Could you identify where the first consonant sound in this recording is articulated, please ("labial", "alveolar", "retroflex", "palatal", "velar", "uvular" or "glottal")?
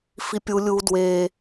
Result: labial